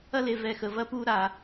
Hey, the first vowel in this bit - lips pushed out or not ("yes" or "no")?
no